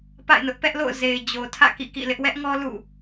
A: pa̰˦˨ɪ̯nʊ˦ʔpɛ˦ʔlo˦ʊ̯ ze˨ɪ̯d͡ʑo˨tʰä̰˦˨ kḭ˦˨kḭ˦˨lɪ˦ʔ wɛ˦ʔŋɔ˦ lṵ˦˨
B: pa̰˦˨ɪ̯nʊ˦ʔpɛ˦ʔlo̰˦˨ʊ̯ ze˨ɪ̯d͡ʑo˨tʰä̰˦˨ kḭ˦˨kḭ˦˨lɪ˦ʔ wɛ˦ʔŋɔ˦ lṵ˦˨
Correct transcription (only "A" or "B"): B